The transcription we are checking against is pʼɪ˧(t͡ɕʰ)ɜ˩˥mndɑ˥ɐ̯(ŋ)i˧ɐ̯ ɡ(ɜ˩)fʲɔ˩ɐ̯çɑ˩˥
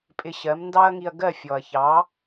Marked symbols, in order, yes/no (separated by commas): no, yes, no